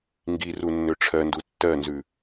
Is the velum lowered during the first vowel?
no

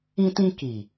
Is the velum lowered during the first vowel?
yes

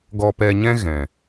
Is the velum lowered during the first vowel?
no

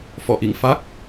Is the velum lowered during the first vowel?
no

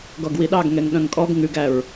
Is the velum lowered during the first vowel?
no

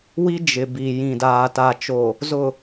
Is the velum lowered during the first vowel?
no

